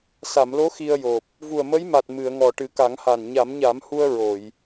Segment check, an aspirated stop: absent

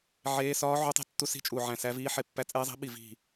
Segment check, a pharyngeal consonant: present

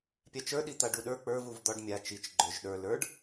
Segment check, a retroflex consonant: present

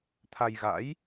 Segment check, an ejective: absent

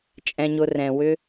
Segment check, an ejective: present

